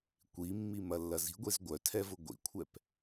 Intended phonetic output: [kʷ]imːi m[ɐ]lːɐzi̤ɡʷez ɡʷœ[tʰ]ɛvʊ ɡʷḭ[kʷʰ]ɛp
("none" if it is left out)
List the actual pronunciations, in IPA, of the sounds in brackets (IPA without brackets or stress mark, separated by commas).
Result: kʷ, ɐ, tʰ, kʷʰ